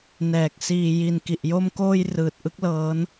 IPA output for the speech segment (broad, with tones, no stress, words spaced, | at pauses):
nɛː˨˩k̚ siː˨˩ ji˨˩nki˨˩ʔjo˧mkoː˧j rɯː˨˩t̚ʔɯ˦˥k̚lɤː˦˥n